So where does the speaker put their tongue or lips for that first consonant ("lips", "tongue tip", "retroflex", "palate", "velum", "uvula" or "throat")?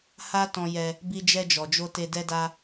throat